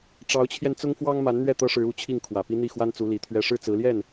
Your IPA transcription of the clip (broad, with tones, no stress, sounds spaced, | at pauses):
ʈ͡ʂ ɑ˧˥ ʊ̯ t͡ɕʰ j ɛ˧ n t͡s ʊ˥ ŋ f w ɑ˥ ŋ m a˧˥ n n̪ ɥ ɛ˥˩ t̪ ɤ˥ ʂ ɻ̩˧˥ u˧˥ t͡ɕʰ i˥˩ ŋ kʰ w ä˨˩ p i˥ n̪ i˥˩ x w a˥ n t͡s u˧˥ l i˧˥ t̪ʰ ɥ ɛ˥ ʂ ɻ̩˥˩ t͡s ɹ̩˧˥ l j ɛ˥˩ n